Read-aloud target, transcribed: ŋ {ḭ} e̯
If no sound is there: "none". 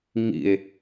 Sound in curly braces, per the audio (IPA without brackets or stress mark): ḭ